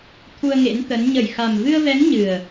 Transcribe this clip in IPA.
t̪ʰu˧ə̯ŋḛ˧˥nt̪ə˨˦n ɲə˧˩j xa˨˩m vɨ˧ə̯vɛ˨˦ŋ ɲɨ˨˩ə̯

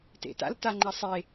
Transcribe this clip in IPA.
tḛta̰lta ŋ͡ǃasˤe

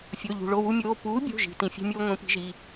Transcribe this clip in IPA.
fʲo˩˧˩ ʎṳ˩ɭo˩˧˩wu˦mʲoː˩˧˩ puː˨˥bʲo̤˩˧˩ʒi̤˩ tĩ˩fʲe̤˦mʲoː˦ ŋʷĩ˨˥pi̤˨˥ʒi˩˧˩

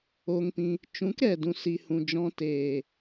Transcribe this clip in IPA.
o˧ŋpĩ˧ | t͡ʃũ˨˦kɾɛ˨dũ˨si˨ hũ˨d͡ʒɔ̃˧teː˨

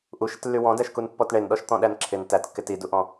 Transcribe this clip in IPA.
ʔuʃɪtlːy wɔ̃dæʃkunpːɔt ɳenɗɔʃt̪ɔ̃ɗæn ǁʰɪn tætkːɪ tiduʔɔ̃

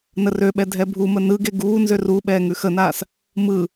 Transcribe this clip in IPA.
nərøɓɛ dʱɛbʱumə nɯɡe ɡuːnzør u ɓɛːŋʉxənaːs | mɯ

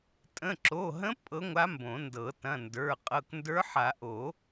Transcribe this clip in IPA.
tʼə̃˩˧˩ ǁo˩˧˩ɦə̃˧˥ pʼɤ˧˥ŋʷa˧˥ mbõ˨˩˦ndɤ˨˩˦ tɐ̃˩˧˩ndə˞˩˧˩ qʼɤ˩˧˩kndə˞˧˥ħa˨˩˦ ʔo˨˩˦

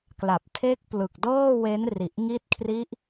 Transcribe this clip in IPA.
kla˨˩p̚tʰe˦˥k̚ plɯ˨˩k̚dɤː˥˩we˦˥nri˨˩ʔ ŋi˦˥t̚kʰri˦˥ʔ

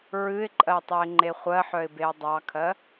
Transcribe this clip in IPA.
ɹɨɪ̯ǃʼɜ tˤœɪ̯ŋ͡ǃeχʷɜħœɪ̯ beʊ̯dˤɑkʰɜ

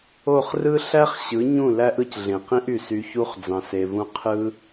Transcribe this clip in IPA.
o˦˨χrɯ˦ ɬæ˦χɕɯ˨˦ɲũ˦˨ læ˦ʔɯ˧cɮẽ˨ qĩ˦ʔy˨sy˧çu˦χ d͡zɑ̃˧se˧vũ˦ qʰɯ˦

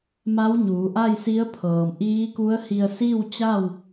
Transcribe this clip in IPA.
ma˧˥wɲuː˩˧ʔa˥˨j si˧˥ə̯pʰɤː˩mʔiː˧˥ku˧˥ə̯ hi˧ə̯siː˥˨wt͡ɕa˥˨w

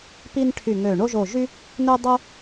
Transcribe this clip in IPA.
pi˥nʈʰy˦˨ŋø˦˨ ɳo˥ʒo˦˨ʒy˥ | nø˥dˤo˥

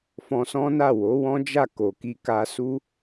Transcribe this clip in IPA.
fɔ̃˧sɔ̃˦na˦˨ wo˨˦wɔ̃˦d͡ʒa˦˨ ko˨ki˧ka˧su˦

